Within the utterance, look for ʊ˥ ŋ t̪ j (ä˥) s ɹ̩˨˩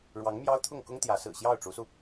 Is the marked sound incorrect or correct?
incorrect